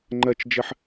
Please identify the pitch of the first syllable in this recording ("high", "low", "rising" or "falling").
high